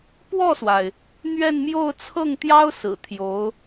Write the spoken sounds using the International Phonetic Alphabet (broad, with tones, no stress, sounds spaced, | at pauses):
p w ɔ˥˩ s w a˩ ɪ̯ | n̪ ɥ ɛ˥˧ n m j o˥˧ ʊ̯ t͡sʰ ɤ˥˩ ŋ t̪ j ɑ˥ ʊ̯ s ɹ̩˨˩ t̪ʰ j o˧˥ ʊ̯